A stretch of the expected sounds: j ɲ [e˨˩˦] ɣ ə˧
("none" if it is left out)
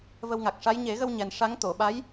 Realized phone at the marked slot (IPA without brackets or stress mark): e˨˩˦